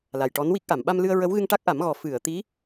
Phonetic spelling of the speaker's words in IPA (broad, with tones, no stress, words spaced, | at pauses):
la˨˩jʈɔ˧˥nwi˦˥k̚ʔa˨˩˨m ɓa˧mlɨ˧ə̯ɹə˧˥wɣɨ˧ŋ ʈa˦˥k̚ʔa˨˩˦mɣɔ˨˩ fɨ˨˩˨ə̯ t̪i˧˥